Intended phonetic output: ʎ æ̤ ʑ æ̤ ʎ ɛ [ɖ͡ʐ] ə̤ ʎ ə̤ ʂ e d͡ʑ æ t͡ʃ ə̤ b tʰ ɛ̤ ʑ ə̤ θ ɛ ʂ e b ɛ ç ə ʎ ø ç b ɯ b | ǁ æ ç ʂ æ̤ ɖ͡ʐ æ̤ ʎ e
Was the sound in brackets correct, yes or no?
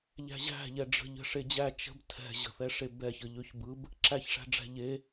yes